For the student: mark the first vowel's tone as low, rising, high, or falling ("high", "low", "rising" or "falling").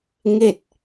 falling